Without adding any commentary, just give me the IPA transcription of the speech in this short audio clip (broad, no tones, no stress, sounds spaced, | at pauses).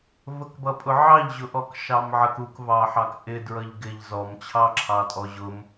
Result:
v ə k b ʌ pʼ ʊ ʕ ɑ ʎ ʑ ʊ ʔ ɔ k ʃ ɑ m ʕ ə k u k v ɑ ħ ɑ k ʔ ɪ d ɹ ʌ ʎ ɡ ɪ ʎ z ɔ m t͡ɕʰ ɑ ǁʰ ɑ tʼ ɔ ʑ ʊ m